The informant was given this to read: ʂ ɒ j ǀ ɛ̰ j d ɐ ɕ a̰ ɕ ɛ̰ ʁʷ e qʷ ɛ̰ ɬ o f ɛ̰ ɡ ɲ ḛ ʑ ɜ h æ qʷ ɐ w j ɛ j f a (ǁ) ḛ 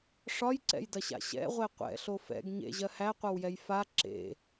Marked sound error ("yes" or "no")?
no